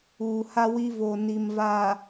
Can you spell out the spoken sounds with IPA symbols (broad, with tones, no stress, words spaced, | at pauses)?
uː˨ha˦wi˦ vo˨ni˨m vaː˨